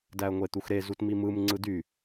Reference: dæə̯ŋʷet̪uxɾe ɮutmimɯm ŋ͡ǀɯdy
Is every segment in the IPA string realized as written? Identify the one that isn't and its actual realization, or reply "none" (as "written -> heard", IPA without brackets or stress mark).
ɮ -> z